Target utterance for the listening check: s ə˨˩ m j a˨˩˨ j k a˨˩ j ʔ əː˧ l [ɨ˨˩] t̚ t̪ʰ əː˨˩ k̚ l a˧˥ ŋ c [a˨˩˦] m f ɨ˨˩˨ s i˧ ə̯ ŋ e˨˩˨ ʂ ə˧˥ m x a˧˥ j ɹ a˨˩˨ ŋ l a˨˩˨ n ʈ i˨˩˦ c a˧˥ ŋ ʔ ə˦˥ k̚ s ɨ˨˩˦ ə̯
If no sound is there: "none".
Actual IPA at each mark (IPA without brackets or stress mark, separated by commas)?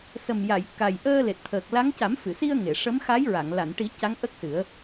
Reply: e˨˩, a˨˩˦